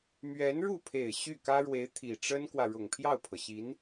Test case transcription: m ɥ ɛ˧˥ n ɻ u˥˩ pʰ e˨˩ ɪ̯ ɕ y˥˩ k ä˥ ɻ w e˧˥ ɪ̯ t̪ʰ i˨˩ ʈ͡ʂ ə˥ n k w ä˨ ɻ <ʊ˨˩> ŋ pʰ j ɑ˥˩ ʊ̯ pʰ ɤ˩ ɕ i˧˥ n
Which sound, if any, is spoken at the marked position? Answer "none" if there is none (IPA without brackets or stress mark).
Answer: ʊ˨˩